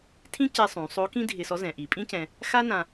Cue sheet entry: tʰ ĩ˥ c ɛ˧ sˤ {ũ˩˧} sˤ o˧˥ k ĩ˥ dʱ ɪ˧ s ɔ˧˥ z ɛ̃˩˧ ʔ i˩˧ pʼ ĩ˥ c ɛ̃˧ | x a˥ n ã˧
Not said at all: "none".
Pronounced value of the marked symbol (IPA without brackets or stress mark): ũ˩˧